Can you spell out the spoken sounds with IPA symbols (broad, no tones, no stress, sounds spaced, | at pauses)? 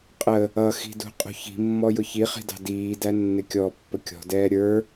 qʼ ə | ʌ x i̤ d ṳ qʼ ṳ ç i̤ mː ɔ j ʊ ç i χ i̤ d ɑ̤ d iː d æ nː ɪ kʲ ɔ pː ə kʲ ɔ̤ d ɛː ɾʲ ə˞